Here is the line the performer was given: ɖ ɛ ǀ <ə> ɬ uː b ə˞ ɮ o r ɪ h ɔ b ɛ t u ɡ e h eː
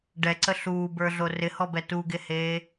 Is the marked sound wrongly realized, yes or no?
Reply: no